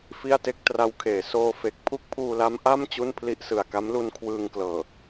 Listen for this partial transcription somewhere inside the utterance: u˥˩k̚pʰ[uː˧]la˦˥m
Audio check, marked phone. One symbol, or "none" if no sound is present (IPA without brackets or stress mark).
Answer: uː˧